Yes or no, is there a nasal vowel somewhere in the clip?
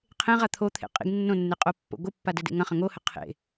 yes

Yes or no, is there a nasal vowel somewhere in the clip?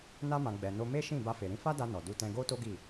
yes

